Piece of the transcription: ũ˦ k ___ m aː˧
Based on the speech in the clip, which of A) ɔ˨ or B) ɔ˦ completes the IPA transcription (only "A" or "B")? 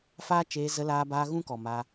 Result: A